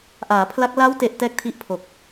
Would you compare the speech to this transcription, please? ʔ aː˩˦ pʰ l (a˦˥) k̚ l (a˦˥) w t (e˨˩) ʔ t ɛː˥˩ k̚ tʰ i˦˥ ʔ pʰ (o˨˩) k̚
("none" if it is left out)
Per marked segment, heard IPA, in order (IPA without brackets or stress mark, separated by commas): a˦˥, a˦˥, e˨˩, o˨˩